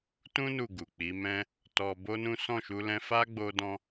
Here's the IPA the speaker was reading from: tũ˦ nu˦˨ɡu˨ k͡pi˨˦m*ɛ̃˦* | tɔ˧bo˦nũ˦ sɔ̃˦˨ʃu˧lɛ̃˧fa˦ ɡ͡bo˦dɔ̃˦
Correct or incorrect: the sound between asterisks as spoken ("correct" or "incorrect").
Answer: correct